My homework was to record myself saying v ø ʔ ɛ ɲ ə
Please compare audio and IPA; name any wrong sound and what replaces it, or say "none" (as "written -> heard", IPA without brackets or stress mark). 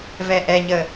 ø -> ɛ